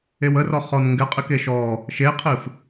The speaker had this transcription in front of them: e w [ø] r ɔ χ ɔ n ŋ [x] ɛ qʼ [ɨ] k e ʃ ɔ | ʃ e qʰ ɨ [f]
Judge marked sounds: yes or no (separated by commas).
no, no, yes, yes